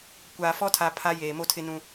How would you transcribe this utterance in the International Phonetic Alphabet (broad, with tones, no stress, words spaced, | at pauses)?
kʷaː˨fɔ˦tʰa˨ pʰa˦jeː˨mo˦tʰɪ˦ nũ˦